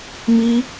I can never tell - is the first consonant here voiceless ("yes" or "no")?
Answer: no